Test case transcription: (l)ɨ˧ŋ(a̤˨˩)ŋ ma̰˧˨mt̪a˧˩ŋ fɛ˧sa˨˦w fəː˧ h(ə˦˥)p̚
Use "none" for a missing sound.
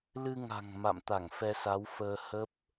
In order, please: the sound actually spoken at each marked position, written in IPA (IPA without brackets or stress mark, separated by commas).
l, a̤˨˩, ə˦˥